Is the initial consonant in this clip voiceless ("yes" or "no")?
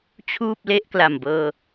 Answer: yes